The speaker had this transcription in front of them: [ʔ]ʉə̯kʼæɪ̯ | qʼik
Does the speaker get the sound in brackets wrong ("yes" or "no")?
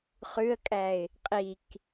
yes